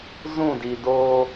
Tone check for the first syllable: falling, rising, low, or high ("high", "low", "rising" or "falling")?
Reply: falling